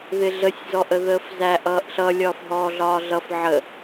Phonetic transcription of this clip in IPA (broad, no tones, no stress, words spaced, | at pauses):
ðɪɮəsʲ zɔʔəðəːfzæ ʔʌːʔɬʌ lʲɒːfɦɔːɮɒːɮʌf ʕə